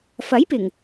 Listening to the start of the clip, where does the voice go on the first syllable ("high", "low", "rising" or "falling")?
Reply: rising